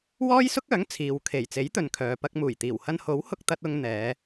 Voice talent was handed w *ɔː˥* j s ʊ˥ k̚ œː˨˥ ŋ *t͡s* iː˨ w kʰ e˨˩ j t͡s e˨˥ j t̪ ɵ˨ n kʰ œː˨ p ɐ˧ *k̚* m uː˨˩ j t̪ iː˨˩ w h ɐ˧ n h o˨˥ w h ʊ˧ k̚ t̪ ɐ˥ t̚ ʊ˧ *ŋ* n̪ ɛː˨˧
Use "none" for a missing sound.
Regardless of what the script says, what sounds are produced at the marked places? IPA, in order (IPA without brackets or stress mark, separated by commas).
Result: ɔː˥, t͡sʰ, k̚, ŋ